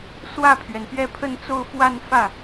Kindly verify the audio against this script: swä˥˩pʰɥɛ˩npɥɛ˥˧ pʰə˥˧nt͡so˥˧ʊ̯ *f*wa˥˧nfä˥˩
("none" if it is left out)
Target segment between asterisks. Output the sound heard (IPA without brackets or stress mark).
f